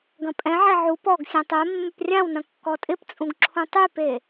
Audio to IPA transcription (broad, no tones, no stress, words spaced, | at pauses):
ɡɐ̃pʼɛ̃ʕɛ ʕu pɔɡsʲɛ̃ tˤɛmːʏp rʲãwnɐ̃ kːɔtʼɪpt͡sʼũɡ ǁʰũtˤype